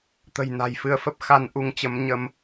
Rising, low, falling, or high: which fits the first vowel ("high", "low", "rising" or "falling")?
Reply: low